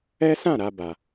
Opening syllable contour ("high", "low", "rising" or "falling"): high